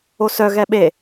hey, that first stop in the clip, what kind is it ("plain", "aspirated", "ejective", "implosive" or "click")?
implosive